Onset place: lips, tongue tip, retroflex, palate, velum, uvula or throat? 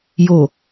palate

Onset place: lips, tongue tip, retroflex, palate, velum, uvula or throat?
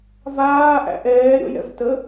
lips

